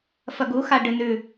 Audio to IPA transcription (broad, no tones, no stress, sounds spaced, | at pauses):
f ɐ ɡ u x a ɖ ɨ n ʉ